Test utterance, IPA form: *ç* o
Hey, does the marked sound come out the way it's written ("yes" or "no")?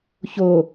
yes